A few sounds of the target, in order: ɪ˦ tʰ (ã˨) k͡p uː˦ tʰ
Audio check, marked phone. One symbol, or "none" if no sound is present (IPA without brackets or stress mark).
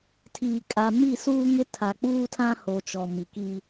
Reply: a˨